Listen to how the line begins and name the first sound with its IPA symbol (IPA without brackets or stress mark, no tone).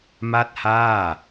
m